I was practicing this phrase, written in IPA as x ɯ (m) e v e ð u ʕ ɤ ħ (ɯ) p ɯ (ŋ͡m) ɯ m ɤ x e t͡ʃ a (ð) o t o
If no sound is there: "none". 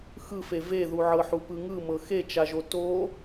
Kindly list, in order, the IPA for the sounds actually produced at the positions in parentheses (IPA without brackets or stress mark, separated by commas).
f, u, ŋ, ʒ